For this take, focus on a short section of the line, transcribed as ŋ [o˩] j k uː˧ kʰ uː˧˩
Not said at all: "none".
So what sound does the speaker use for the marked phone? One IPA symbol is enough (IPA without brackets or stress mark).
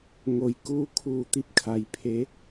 o˩˧